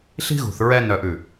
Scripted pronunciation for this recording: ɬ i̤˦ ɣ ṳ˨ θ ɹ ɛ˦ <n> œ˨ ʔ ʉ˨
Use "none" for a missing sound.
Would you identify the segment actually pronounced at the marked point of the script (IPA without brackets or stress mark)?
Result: n